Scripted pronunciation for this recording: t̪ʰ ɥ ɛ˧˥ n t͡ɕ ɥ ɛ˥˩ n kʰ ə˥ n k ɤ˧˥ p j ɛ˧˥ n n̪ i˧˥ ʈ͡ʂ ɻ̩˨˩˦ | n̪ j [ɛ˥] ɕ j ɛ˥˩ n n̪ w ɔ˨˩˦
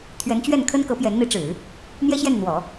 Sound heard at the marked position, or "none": ɛ˥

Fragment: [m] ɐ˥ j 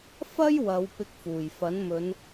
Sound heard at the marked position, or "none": f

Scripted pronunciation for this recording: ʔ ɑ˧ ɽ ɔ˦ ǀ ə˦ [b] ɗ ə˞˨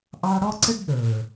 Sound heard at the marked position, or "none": ɖ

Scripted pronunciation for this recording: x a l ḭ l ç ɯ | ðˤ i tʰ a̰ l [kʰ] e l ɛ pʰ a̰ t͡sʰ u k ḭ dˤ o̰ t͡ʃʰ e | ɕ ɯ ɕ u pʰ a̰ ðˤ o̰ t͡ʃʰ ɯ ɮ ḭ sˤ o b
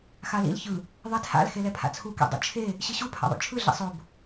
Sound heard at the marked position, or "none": x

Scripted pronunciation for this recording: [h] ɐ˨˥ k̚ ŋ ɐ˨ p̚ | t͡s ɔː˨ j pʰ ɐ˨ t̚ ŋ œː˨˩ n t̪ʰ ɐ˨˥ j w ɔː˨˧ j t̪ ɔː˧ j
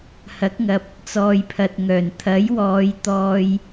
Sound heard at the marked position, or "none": h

